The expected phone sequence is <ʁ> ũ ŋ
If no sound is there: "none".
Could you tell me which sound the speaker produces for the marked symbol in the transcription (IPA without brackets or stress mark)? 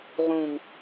ʁ